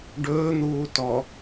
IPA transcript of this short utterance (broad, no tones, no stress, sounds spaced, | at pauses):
ɖ ɵː n̪ uː t ɔ